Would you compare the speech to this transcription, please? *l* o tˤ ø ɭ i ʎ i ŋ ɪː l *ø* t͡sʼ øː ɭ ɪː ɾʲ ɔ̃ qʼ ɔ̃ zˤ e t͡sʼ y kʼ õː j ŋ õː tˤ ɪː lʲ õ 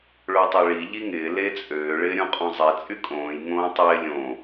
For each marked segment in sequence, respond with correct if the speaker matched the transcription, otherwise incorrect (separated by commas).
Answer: incorrect, incorrect